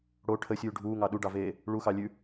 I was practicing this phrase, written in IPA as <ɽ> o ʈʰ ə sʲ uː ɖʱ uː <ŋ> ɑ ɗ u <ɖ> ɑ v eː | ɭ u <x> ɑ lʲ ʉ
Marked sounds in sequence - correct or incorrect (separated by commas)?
correct, correct, correct, correct